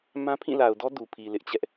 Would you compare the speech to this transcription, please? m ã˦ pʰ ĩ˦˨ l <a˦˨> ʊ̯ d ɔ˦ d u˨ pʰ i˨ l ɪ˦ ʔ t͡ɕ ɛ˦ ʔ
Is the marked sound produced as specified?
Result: no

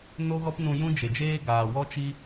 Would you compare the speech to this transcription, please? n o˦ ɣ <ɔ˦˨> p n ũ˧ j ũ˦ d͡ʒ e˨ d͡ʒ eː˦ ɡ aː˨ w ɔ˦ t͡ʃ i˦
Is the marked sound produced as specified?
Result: no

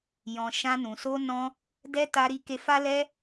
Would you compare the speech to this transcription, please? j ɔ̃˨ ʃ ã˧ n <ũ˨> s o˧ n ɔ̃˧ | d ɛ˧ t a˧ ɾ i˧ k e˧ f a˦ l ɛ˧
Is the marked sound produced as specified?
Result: yes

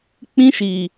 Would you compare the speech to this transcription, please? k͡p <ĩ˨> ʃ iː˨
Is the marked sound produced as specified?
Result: no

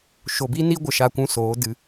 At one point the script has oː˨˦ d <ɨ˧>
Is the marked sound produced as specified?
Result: yes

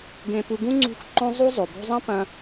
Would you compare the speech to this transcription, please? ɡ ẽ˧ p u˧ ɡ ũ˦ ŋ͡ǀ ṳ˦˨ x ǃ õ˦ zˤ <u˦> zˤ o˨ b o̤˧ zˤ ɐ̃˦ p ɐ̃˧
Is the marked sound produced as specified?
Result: yes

